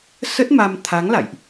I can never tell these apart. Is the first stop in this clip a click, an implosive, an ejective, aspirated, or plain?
plain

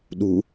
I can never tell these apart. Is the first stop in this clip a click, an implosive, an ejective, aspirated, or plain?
implosive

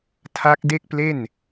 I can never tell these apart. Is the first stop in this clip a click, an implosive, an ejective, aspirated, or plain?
aspirated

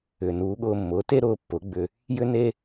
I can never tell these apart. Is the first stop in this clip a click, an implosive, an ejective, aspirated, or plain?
implosive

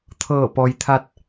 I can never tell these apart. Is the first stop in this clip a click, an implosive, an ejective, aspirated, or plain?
aspirated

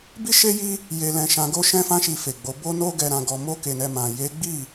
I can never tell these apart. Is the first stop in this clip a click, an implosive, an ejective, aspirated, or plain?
plain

